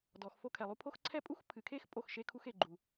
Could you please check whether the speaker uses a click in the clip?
yes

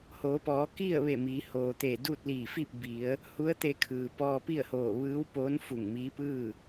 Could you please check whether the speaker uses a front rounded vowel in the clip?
no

